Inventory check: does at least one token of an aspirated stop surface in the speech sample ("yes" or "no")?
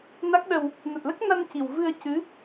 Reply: no